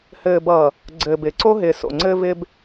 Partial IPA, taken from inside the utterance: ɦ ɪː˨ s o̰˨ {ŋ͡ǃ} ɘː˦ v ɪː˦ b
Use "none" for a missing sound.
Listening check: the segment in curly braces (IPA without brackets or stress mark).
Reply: ŋ͡ǀ